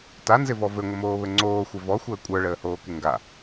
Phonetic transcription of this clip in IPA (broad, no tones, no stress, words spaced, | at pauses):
tanzɪvɔ vɘŋʷəmoːβɘ ŋ͡ǀoːxʷɪ vɔxʷəː kʷʼə˞ɭəːhoːkɪ ŋɡa